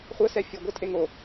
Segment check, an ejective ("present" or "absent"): present